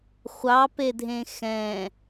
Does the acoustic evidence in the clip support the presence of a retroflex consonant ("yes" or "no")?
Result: no